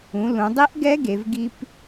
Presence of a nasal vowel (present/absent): present